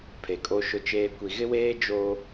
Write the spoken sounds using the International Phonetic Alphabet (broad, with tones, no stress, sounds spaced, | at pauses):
pʰ e˨ kʼ o˦ ʃ ʊ˦ t͡ʃ eː˦ kʷ i˨ ɣ ɪ˦ w eː˦ d͡ʒ o˦